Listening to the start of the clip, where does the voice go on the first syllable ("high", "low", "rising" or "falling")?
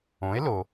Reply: rising